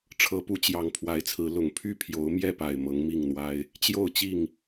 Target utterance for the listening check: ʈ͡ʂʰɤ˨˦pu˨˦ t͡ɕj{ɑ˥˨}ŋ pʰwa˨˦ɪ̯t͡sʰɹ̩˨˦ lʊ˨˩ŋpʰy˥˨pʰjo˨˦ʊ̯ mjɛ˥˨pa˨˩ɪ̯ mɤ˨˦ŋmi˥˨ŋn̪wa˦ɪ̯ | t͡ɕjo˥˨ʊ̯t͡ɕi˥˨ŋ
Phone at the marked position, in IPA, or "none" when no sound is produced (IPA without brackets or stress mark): ɑ˨˩